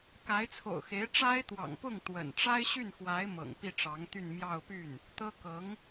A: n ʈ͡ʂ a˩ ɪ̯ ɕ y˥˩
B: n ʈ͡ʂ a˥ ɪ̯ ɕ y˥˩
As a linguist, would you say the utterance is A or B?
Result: B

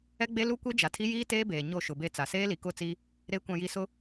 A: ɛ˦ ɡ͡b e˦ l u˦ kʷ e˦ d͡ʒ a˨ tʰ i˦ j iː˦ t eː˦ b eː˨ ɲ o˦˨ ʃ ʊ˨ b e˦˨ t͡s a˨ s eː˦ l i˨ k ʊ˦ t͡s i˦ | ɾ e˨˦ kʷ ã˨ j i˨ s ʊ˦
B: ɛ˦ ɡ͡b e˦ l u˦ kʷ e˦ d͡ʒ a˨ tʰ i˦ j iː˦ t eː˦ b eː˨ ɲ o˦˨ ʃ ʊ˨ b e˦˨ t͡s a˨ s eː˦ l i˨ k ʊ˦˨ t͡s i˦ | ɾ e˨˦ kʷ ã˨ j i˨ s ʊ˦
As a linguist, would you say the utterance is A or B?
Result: B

